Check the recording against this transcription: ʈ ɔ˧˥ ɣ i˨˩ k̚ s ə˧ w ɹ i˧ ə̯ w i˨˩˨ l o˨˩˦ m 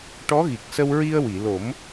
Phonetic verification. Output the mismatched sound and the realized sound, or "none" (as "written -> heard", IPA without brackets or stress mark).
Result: none